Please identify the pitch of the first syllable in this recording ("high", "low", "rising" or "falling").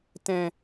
low